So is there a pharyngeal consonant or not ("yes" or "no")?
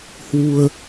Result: no